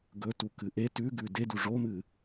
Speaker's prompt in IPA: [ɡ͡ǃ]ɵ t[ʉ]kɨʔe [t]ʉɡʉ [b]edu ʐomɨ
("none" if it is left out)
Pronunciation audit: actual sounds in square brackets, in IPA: ɡ, u, t, d

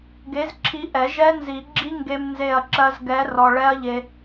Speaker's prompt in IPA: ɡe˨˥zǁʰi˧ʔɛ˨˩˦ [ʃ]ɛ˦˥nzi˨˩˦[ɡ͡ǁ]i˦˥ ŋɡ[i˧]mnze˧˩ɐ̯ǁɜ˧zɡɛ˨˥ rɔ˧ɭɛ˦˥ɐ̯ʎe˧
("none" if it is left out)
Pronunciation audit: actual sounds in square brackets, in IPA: ʒ, ɡ͡ǁ, e˧

